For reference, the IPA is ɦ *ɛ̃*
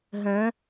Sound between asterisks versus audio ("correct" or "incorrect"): correct